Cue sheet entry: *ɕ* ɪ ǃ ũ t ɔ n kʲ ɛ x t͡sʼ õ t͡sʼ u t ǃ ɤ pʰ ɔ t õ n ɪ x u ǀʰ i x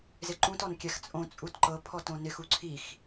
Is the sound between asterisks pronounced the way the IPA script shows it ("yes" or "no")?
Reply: no